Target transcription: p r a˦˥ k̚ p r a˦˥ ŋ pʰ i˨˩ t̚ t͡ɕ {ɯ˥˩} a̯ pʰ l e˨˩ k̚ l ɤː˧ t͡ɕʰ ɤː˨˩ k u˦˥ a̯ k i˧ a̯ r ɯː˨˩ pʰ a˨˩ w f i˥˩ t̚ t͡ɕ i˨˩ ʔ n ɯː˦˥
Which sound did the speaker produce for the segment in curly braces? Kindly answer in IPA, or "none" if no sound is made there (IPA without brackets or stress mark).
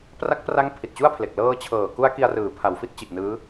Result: u˥˩